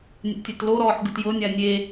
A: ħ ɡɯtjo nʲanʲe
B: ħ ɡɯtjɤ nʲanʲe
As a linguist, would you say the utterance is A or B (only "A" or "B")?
B